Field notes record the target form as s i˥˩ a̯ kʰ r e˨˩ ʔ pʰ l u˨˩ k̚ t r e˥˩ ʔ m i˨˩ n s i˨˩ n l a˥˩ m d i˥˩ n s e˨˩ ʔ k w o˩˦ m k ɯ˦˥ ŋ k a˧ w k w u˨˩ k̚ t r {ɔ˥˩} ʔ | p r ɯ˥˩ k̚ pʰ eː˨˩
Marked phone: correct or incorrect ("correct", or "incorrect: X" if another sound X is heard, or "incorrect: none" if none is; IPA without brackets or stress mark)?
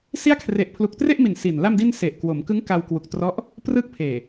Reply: incorrect: ɔ˦˥